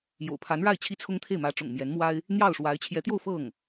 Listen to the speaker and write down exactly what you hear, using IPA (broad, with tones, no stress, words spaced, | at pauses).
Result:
jo̰˨˩ʊ̯pʰa˧˥nɻa˥˩ɪ̯ t͡ɕʰi˥t͡sʰʊ˥ŋt̪ʰe˥˩ɪ̯ mä˧˥ ʈ͡ʂʊ̰˨˩ŋmjɛ˧˥nmwa˥ɪ̯ | n̪jɑ˥˩ʊ̯ʂwa˧˥ɪ̯ t͡ɕʰjɛ˧˥t̪jo˥˧ʊ̯ fɤ˥˩ŋ